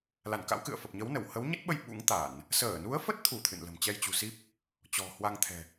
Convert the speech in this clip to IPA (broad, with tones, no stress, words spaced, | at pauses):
la˧˩nka̰˧˥wkɨ̰˧˨ə̯ fə˨˩p̚ɲə˨˦w nə˧˩w hə˨˦wɲə˦˥t̚ɓə˧j ɓṵ˧˥ŋt̪a˧˩˨n | səː˧˩nu˨˦ə̯fə˦˥t̚t̪ʰu˧˩ t̪ʰɨ̰˧˨nlə̤˨˩m t͡ɕɛ˧jt͡ɕṳ˨˩si˦˥p̚ | t͡ɕɔ̤˨˩hwa˧ŋt̪ʰɛ̤˨˩